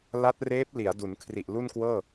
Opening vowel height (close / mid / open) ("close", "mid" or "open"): open